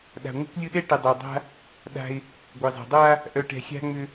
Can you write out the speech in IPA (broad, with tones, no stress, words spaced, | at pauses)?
ɗa̤˨ ŋʷɛ̤˦kʷlʲʊ˦ɗɛ˦ ʈɛ˨dˤa˨dˤa̤˦ | ɗa̤˦ɪ̯ | ɡʷe˨zˤa̤˨dˤa˦ | ʔœ˨ʈɛ̤˨ xʲa̤˦ŋ͡mʏ˦